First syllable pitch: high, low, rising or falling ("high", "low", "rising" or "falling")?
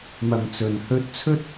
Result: low